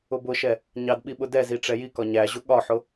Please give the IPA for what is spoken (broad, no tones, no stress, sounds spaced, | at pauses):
ʊ b ʊ ʃ ɛ | ɲ ɑ d ɓ i ɓ ʊ d ɛ z i ʈ͡ʂ ɛ j i k ɒ ɲ æ ʑ ʊ ɠ ɒ ħ ʊ